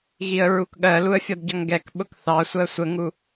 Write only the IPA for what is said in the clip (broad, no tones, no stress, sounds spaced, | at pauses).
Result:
ɣ i ə̯ ɹ u k ɠ ɜ l u ə̯ fʲ ʌ d ɟ ʌ ŋ ɡ ɛ k ɓ ʊ k θ ɑ sʷ ɜ sʷ ə ŋ u